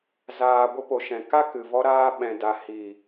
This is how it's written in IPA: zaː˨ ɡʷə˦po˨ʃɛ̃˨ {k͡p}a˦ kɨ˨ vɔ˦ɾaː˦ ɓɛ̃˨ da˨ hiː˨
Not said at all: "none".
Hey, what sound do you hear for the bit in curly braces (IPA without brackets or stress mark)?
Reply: k